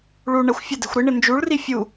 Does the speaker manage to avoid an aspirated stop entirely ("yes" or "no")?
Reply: yes